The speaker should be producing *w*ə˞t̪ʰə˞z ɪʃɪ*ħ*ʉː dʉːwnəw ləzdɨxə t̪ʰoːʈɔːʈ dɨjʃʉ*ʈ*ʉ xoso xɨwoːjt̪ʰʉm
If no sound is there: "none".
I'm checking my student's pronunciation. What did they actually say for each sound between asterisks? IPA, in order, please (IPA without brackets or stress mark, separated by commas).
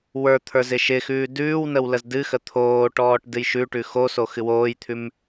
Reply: w, x, ʈ